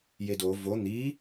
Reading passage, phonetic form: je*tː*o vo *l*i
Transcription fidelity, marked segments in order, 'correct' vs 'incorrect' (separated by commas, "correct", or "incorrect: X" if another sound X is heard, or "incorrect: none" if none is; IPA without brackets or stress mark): incorrect: d, incorrect: n̪